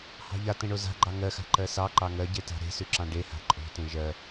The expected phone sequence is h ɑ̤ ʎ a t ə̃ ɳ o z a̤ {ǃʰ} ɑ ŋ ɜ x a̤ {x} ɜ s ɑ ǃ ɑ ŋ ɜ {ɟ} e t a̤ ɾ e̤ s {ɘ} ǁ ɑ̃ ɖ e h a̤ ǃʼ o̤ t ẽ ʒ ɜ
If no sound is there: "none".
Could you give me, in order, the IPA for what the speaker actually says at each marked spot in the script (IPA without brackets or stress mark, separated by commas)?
ɡ͡ǃ, ǃ, ɟ, ʉ